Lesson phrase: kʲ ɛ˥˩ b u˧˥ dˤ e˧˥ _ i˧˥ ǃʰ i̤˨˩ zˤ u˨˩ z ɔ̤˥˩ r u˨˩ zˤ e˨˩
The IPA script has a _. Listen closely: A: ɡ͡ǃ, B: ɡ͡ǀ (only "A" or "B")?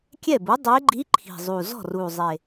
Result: A